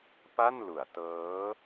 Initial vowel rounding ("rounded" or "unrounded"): unrounded